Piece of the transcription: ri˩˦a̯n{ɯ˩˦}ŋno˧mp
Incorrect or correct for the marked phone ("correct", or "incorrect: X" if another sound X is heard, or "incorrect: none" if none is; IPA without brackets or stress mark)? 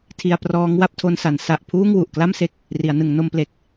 correct